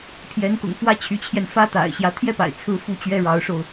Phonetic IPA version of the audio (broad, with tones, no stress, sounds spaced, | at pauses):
pʰ j ɛ˧˥ n k ʊ̰˨˩ ŋ f w ä˥ t͡ɕʰ y˧˥ t͡ɕʰ j ɛ˧ n f ä˥ t̪ a̰˨˩ ɪ̯ ɕ j ä˧˥ t̪ʰ j ɛ˥ p a̰˨˩ ɪ̯ t͡sʰ ɹ̩˥ f u˥ t͡ɕ ɥ ɛ˥ ɻ ɑ˧˥ ʊ̯ ʂ o˧ ʊ̯